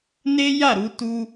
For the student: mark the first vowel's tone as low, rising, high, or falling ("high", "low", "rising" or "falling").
high